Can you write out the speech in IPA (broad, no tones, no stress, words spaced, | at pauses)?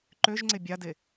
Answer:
ǃøʒŋ͡ǀɪ bʲade